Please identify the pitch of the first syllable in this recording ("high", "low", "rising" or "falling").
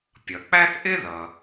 low